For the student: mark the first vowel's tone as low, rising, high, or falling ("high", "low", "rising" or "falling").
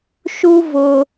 high